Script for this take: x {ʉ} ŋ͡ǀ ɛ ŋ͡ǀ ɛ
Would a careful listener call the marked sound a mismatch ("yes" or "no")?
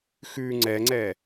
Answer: no